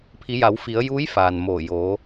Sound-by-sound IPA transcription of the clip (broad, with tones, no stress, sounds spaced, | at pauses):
pʰ i˩˧ j a˩˧ w f i˩˧ ə̯ j uː˧˥ j f aː˩ n m oː˧˩ j oː˩˧